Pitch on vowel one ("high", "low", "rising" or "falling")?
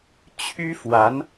high